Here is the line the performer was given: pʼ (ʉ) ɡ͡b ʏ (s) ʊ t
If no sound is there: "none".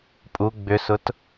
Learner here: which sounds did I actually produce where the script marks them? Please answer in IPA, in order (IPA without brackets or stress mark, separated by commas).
u, s